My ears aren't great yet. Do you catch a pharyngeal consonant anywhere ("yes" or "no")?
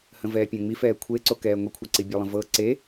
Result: no